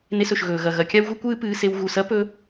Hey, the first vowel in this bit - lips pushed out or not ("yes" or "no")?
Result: no